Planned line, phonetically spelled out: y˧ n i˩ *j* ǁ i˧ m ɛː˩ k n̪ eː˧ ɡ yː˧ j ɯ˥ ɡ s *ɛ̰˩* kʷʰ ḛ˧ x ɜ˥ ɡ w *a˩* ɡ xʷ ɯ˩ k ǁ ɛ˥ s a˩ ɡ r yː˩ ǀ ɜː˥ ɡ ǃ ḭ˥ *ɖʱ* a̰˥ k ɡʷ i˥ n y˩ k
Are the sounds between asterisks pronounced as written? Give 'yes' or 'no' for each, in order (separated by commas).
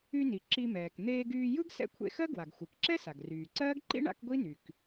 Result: no, no, yes, no